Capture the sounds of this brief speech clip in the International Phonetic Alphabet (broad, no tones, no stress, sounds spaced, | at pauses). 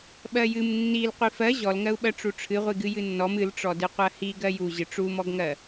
ɓ ɜ j ɨ m nː i l qʷ i f ɜ ʑ ɔ l ŋ ɜ u̯ ɓ ɜ ʈ͡ʂ u ʈ͡ʂʰ ɨ ʁʷ i ɡ ɨ j ɨ nː ɔ m ɨ l ʈ͡ʂ ɔ d ɨ qʷ ɜ h i ɡ ɜ j u ʑ ɨ ʈ͡ʂ u m ɔ ɡ ŋ ɜ